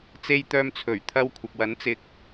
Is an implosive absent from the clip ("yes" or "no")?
yes